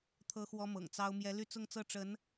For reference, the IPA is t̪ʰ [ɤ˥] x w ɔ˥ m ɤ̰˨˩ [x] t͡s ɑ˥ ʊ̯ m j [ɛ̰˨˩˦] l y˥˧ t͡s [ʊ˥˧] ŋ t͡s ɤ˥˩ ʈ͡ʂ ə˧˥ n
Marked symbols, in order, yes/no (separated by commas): yes, no, no, yes